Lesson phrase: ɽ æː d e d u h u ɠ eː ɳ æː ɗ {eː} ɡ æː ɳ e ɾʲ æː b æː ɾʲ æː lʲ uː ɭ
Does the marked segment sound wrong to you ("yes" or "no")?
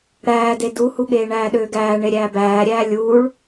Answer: yes